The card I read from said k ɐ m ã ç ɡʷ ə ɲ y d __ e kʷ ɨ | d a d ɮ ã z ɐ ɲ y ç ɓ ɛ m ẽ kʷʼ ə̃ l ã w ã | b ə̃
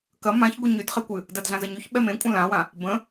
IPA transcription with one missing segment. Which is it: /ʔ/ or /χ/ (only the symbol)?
χ